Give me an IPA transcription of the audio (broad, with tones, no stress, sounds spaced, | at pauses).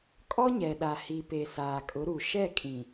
kʼ ɔ˦ ɲ ɛ˨ ɗ a˨ h i˨ p e˨ s aː˨ kʼ ʊ˨˦ ɾ u˨ ʃ ɛ˦˨ kʼ ĩ˨